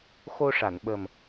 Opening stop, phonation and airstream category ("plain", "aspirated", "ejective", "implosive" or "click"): implosive